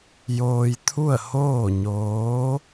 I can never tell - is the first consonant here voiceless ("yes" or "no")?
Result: no